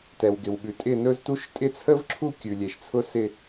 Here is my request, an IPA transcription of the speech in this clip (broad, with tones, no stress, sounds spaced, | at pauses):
t ɛ˩ w ɡ ɪ˩ w ɓ ʉ˩ tʼ ɪ˥˧ n ɵ˥ z t u˥ ʃ tʼ ɪ˥˧ t͡sʰ ə˥ v ǁʰ u˥˧ kʲ ʉ˩ lʲ e˩ ʃ t͡sʰ ʊ˥ s ɪ˥˧